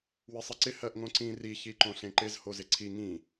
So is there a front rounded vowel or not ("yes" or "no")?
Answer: no